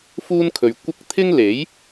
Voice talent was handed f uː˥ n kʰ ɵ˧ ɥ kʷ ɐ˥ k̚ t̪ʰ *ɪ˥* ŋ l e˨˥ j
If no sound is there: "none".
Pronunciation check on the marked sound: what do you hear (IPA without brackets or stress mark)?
ɪ˥